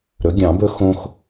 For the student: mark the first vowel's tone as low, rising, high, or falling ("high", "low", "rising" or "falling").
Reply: rising